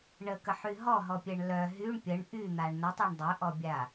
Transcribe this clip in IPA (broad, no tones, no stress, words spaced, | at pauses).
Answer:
ɳəkəħy ɦɔɦɔpʲɛɳ lœ ɦyɳ pʲəɳ ʔyn̪aɳ nətˤɛɳ dˤœʔɔbʲa